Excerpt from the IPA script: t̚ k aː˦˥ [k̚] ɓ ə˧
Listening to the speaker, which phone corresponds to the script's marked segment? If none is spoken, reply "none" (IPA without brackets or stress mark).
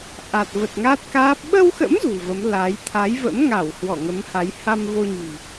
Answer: p̚